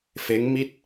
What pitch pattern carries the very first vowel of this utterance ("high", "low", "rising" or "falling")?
rising